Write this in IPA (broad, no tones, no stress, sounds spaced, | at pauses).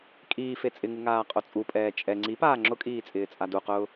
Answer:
kʼ iː f e t͡sʼ ɪ ŋ u ŋ aː qʼ o t͡sʼ u pʼ ɛː t͡ʃʼ ɛ ŋ͡ǀ i p aː ŋ͡ǁ ʊ kʼ iː t͡sʼ ɪː t͡sʼ a d u q ʊː